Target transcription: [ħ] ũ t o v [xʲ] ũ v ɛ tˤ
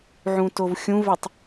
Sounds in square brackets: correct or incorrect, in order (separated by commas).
incorrect, correct